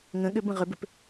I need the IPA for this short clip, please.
ŋ ə̃ ɠ ʏ b ə̃ ʁ ʏ b ʏ p

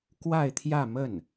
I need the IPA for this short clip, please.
k w a˥˧ ɪ̯ t̪ʰ j ä˥˧ m ə˥˩ n

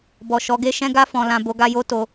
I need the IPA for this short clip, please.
b ɔ˨ ʃ ɔ˨˦ ɡ e˦ ʃ ɛ̃˦ ɡ a˦ f ɔ̃˧ l ã˧ b o˧ ɡ a˧ j o˦ t o˧

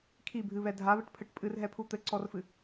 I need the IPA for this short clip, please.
kʰ i bʱ ɨ β ɛ dʱ a β ɘ ʈ pʰ ɘ ʈ pʼ ɨ r ɦ ɛ pʰ u t̪ ɘ ǀ ɔ r f ɨ

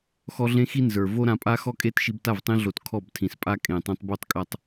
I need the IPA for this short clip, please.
x ɔ˦ ɮ ẽ˦ x i˦ n z ə˞˨ v o˦ ɾ ã˧ pʼ a˦ x ɔ˦ kʼ e˦ t ʃ i˧ b t a˦˨ v tˤ ĩ˧ ɮ o˨ t kʰ ɔ˦˨ b tʰ ĩ˨ s pʼ a˦ kʼ ẽ˨ tˤ ĩ˧ tˤ b o˦ tˤ kʼ a˦ tˤ

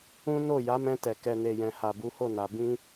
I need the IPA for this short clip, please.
ũ˦ n o˦˨ j a˨˦ m ɛ̃˧ t ɛ˨ k ɛ˨ n e˨ j ɛ̃˨ h a˨ b u˨˦ h o˦˨ n a˨ b ĩ˧

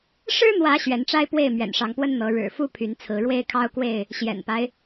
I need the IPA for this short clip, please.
ʂ ɻ̩˦ n̪ w ä˨˦ ɕ ɥ ɛ˨˦ n ʈ͡ʂ a˦ ɪ̯ p w e˥˨ ɪ̯ m ɥ ɛ̰˨˩ n ʂ ɑ˨˦ ŋ p w ə˦ n n̪ ɤ˨˦ ɻ ɻ̩˨˩ f u˦ pʰ y˨˦ n t͡sʰ ɹ̩˨˦ ɻ w e˦ ɪ̯ kʰ ɑ˦ ʊ̯ k w e˥˨ ɪ̯ | ɕ j ɛ̰˨˩ n p a˦ ɪ̯

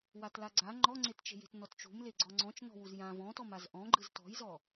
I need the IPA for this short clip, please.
w a t l a ɡ͡ǀ a ŋ͡ǃ ɔ ŋ͡ǀ e t t͡ʃ e̤ j e̤ t n ɔ t t͡ʃ ṳ m l e ɡ͡ǀ ɔ ŋ͡ǀ ɔ̃ t͡ʃ n ɔ̤ w u z j ã v ɔ̃ t ɔ m a z ʔ ɔ̃ ɡ͡ǃ ɯ z t ɔ̤ j z ɔ

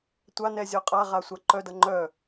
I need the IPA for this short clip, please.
tʷ a n ɛ zʲ ɒ qʼ a ʁ a sʷ a ǃ œ d ʌ ŋ͡ǃ œ

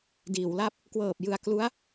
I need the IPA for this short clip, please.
d iː˩˦ w l a˦˥ p̚ | k w ɤː˨˩ p̚ j ɯ˨˩ a̯ k l u˦˥ a̯

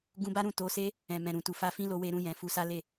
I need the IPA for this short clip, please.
ɡ ũ˧ b a˦ ɾ ũ˦˨ t o˨˦ s e˦ | ɛ̃˨ m ɛ̃˨ ɾ ũ˨ t u˨ f a˧ f ĩ˦ l o˧ w e˧ ɾ ũ˧ j ɛ̃˨ f u˧ s a˦ l e˦˨

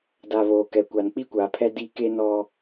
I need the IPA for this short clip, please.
d a˨ β oː˨ k ɛ˨ kʷ a˨ n k͡p i˦ kʷ aː˨ pʰ ɛ˦ d i˦ k e˦ n ɔ˦

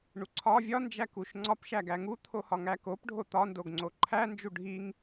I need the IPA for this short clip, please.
ɳ u ǀʰ ɒ vʲ ɒ n d͡ʒ æ k u ʃ ŋ͡ǀ ɒ p ʃ æ ɡ æ ŋ u t̪ʰ o h ɒ ŋ æ k o p ɖʱ o t̪ ɒ n d o ɡ ŋ͡ǀ o ǃʰ æ n d͡ʒ u ɖʱ i ŋ

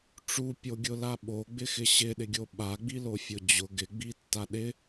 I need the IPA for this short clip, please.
ʈ͡ʂ u pʲ o ɡʲ ʊ l a ɓ o ɡ͡b ɪ x ɪ ɕ ɪ ɗ ɪ ɡʲ o ɓ a ɡ͡b i l o fʲ ʊ d͡ʑ ʊ ɡ ɪ ɡ͡b i tː a ɗ ɪ

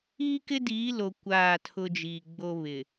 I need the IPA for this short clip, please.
iː˦ k ɪ˦ d iː˨˦ l o˨ kʷ aː˦˨ tʰ ʊ˦ d͡ʒ iː˨ ɡ͡b o˦ β ɪ˨

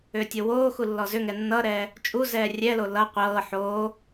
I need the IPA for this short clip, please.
ʏː tʲ o w oː x u lː ɔ z ʏ ŋ ɛ nː ʌ ɾ ɛː | t͡ʃʼ u z ɛː rʲ ɛ l o l ʌ qʷ ɤː ħ oː

